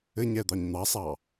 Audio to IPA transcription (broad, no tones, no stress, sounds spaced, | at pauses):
ɘ ɲ ɛ d̪ ɑ ɲ n̪ ɑ sˤ ɑ